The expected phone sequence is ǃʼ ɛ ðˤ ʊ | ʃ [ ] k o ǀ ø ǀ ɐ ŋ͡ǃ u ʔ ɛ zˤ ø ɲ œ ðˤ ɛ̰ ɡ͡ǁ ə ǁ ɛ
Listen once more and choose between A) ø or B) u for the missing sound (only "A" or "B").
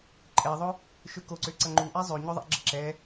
A